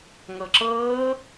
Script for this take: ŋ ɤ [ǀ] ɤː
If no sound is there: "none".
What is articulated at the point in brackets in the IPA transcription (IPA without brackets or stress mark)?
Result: ǁ